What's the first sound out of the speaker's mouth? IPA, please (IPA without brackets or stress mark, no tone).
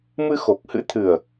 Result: m